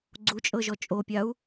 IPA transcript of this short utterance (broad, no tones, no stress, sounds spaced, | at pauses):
ɡ͡ǀ u t͡ʃʼ ɤ ʒ ɔ t͡ʃʼ o pʲ a u̯